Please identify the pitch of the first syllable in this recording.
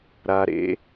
low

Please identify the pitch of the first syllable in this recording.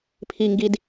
low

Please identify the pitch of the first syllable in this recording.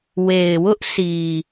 low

